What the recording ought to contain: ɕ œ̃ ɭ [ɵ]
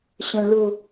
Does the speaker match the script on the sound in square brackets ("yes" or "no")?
yes